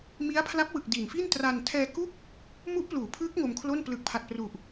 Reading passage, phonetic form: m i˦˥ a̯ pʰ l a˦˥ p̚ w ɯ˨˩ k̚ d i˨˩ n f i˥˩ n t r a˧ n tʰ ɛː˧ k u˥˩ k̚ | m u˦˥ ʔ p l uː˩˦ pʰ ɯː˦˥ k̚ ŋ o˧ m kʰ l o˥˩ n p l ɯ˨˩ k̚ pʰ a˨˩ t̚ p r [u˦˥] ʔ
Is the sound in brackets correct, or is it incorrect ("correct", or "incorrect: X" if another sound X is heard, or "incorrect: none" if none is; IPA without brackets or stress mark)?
incorrect: u˨˩